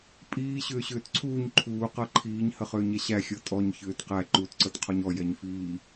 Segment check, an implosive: absent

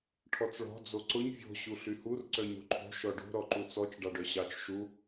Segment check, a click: present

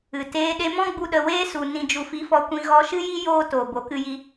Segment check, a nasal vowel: present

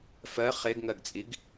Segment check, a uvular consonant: present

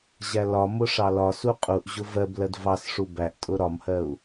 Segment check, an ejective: present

